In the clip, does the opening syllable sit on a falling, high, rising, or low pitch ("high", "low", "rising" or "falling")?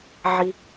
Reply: low